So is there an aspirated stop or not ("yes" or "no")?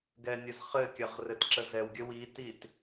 no